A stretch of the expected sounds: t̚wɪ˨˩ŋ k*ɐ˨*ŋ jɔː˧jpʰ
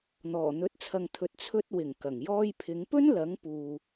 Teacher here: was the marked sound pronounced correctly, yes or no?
no